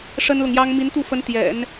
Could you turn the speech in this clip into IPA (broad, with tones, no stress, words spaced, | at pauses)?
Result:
ʂə˥nlʊ˨ŋjɑ˥ŋ mi˧˥nt̪u˥˩fə˧˥n t̪jɛ̰˨˩˦n